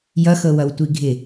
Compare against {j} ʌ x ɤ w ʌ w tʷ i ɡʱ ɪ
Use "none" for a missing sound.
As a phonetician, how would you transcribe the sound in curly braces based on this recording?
j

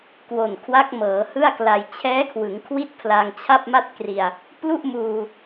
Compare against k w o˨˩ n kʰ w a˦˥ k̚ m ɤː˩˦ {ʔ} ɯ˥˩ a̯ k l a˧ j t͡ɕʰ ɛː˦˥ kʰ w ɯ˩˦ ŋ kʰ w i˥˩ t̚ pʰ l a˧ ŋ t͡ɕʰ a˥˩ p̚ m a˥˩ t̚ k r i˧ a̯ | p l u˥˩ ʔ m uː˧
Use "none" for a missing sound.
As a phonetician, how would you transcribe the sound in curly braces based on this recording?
h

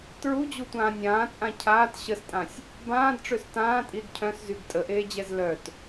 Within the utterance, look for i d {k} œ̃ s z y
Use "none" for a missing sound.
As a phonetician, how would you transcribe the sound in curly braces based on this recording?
cʰ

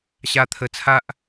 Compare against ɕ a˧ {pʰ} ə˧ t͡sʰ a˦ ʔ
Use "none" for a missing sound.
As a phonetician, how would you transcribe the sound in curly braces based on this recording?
t̪ʰ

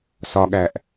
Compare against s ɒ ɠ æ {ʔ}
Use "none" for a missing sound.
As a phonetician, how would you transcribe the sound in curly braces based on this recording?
ʔ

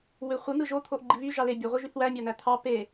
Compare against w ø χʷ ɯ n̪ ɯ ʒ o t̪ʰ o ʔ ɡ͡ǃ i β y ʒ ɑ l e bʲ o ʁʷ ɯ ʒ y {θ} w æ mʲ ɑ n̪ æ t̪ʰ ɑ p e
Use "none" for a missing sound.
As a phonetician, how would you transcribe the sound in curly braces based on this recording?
θ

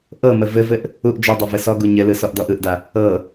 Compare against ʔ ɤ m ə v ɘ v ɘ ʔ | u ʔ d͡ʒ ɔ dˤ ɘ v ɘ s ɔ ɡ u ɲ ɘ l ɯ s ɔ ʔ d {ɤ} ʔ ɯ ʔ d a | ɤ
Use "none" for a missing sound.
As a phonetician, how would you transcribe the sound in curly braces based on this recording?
ɔ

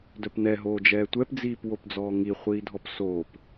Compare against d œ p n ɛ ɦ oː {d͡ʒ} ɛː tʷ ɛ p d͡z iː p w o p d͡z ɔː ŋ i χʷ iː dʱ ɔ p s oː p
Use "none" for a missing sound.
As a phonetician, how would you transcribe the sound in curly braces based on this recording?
d͡ʒ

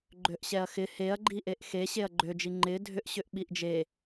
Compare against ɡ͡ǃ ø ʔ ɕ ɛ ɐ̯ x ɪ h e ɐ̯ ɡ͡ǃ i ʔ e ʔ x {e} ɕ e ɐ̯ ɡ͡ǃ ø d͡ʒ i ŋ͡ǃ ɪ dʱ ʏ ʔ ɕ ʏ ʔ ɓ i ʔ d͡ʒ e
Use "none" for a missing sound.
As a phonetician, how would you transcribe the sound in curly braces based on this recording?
e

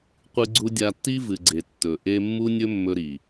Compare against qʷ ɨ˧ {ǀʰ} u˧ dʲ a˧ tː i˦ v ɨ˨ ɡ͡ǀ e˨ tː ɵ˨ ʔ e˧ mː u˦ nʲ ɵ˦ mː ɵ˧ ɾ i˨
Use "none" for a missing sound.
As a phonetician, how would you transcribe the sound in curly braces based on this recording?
ɡ͡ǀ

